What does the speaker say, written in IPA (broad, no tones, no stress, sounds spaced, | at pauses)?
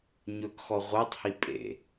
ɲ ɵ k x ɔ ʁʷ æ tˤ h i pʼ ḛ